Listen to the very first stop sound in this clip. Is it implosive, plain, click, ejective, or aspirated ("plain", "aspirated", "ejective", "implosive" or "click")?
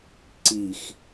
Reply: click